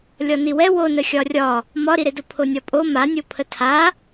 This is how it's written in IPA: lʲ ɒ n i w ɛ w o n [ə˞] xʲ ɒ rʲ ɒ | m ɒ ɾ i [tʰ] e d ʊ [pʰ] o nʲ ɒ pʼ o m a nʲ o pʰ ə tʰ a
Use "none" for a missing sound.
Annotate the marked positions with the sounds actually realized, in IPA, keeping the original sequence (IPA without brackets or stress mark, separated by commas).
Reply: ə, ɾ, pʰ